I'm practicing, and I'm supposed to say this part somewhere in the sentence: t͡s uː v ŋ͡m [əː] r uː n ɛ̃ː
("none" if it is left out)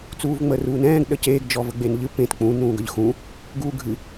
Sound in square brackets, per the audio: əː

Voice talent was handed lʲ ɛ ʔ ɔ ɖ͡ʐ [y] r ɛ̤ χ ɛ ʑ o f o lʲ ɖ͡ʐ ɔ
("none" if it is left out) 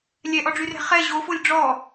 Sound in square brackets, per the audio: y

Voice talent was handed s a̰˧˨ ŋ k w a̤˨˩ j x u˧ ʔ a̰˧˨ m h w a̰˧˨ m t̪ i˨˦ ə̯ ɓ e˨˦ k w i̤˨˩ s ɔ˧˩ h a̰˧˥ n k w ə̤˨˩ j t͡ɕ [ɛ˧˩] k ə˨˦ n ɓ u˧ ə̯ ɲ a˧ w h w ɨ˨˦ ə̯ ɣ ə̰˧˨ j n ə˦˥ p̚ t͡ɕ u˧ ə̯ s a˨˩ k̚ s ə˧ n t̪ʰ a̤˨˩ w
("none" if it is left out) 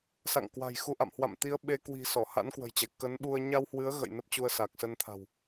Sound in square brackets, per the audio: ɛ˧˩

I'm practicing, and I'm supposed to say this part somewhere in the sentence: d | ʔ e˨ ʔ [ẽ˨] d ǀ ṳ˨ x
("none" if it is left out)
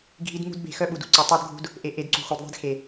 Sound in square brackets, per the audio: e˨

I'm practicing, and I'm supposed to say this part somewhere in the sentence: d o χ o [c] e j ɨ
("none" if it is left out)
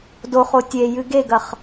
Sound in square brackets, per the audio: tʲ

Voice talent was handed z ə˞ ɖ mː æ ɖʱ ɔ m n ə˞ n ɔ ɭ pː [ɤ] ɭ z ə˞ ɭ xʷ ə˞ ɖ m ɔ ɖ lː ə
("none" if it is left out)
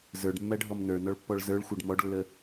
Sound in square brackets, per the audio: ɔ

